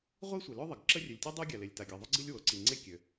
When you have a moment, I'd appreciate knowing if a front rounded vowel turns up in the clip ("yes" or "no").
yes